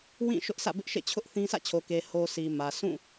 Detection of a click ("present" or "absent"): absent